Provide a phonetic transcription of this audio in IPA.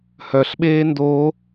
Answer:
h œ ɬ ɓ eː n d oː

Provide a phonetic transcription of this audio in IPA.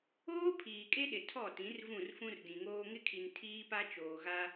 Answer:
oː˦ pʰ iː˨ kʼ e˦ ɗ ɪ˨ tʰ ɔ˦˨ t ĩ˨˦ r v ũ˦˨ r f ũ˦ r d ĩ˨ ŋ oː˦ ŋ ɪ˦ kʰ i˨ n tʰ iː˦ p a˦ t͡ʃ oː˨ ɣ a˦

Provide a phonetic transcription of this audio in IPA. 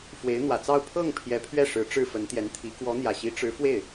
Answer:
f w e˧˥ ɪ̯ n̪ w ä˨˩ t͡s ɑ˥˧ ʊ̯ pʰ ɤ˥˩ ŋ pʰ j ɛ˧˥ pʰ ɥ ɛ˥˩ ʂ ɻ̩˧˥ ʈ͡ʂ ɻ̩˥˩ f ə˧˥ n t̪ j ɛ˧˥ n t̪ʰ i˧˥ k w ɔ˧˥ n̪ j ä˨˩ ɕ i˧˥ ʈ͡ʂ ɻ̩˧˥ f w e˥˩ ɪ̯

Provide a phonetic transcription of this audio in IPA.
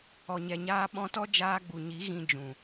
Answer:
ɔ˨ ɲ ɛ˨ ɲ aː˧ ɓ ɔ̃˧ t ɔ˦ d͡ʒ aː˧ ɡ͡b u˨ ɲ i˨˦ ɣ ĩ˧ d͡ʒ ũ˨

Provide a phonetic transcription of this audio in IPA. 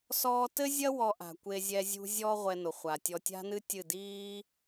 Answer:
s ɔː˦ t ɘ˦ zʲ ɐ˦ w ɔ˧ ʔ a̤˨ kʷ e˧ zʲ ɛ˧ zʲ ṳ˧ zʲ ɔ˧ ʁʷ ɛ˧ n o˨ χʷ a˨ tʲ ɔ˧ tʲ a̤˦ n ɨ˦ tʲ ɨ˦˨ d iː˦

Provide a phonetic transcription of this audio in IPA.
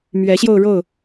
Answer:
m ɥ ɛ˨˦ ɕ j o˧ ʊ̯ ɻ o˥˨ ʊ̯

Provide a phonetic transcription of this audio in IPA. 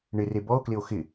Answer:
ɳ ɪ r e b ɔ o̯ k l ɪ o̯ x ɪ

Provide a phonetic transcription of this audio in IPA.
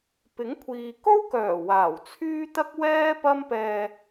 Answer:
p ɪ˨˥ ŋ kʷʰ iː˨ k o˥ w k œː˨˩ w aː˨˩ w t͡sʰ yː˥ t̪ ɐ˥ k̚ w ɛː˥ p ɐ˥ m p ɛː˧

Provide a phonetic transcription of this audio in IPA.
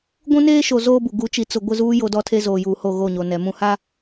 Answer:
ɡʷ ũ˦ n eː˦ ʃ o˨ z oː˦ b u˨ ɡ u˨˦ t͡ʃ i˨ t͡s ʊ˨ ɡʷ ɪ˦˨ z uː˦ j o˦ d ɔ˦ tʰ e˦ z oː˨ j uː˨ h o˦˨ ɣ o˦˨ ɲ o˨ n ɛ˨ m ũ˦ h a˦

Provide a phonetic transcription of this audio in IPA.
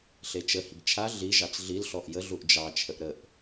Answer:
ɬ e t͡ʃ ə h i ɡ t͡ʃʰ a ɮ i ʒ ɑ t͡s ɮ i l ɬ ɔ ʔ j ə ɮ u ʔ d͡ʒ ɑ t͡ʃʰ ə ʔ ɾ ə ʔ

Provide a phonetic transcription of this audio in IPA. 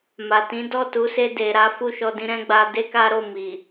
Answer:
m a˨ t ĩ˨˦ d ɔ˦˨ t u˨˦ s e˧ d e˨ ɾ a˨˦ f u˦˨ ʃ ɔ˧ d ĩ˧ ɾ ɛ̃˦ ɡ͡b a˧ d e˦ k a˦ ɾ o˦˨ m i˨

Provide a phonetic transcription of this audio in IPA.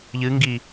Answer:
ʎ ɨ ŋ ɡ i

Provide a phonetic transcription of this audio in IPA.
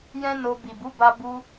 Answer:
j ɛ̃˦ n o˧ b i˨ b u˨˦ b a˧ b u˧

